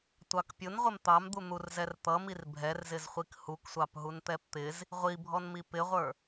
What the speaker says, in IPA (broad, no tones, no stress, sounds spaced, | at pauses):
tʷ ɑ k pʲ ʊ n ʁʷ ɪ m t̪ ɑ m d̪ u n̪ u r z ɛ r t̪ ʌ m i r bʱ ɛ r z ɪ z χʷ i k h u k sʷ ɑ p ɦ u n t̪ ɛ p t̪ ɪ z | ʁʷ i bʱ ɔ n m i p ɪ ʁʷ ə˞